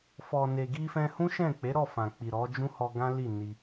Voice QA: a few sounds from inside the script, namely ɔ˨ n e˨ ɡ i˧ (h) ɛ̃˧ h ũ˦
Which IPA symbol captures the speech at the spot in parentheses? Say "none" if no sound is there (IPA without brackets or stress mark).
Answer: f